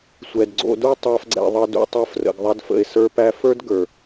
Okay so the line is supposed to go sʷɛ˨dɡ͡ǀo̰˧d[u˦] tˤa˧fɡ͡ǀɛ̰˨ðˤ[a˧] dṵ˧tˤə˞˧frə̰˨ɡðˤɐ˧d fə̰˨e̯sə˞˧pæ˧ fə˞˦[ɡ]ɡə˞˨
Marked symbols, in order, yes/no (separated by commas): yes, no, no